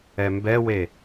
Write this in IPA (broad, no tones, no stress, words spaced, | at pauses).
ɛmbɛwe